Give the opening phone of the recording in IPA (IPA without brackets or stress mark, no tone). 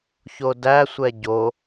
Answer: ç